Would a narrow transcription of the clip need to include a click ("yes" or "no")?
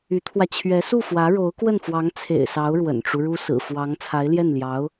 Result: no